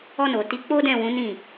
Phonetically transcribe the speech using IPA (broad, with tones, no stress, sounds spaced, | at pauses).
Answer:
ɔ˧ n o˨ t i˨˦ k͡p o˦ d ɛ̃˦˨ w ũ˨˦ n ĩ˦˨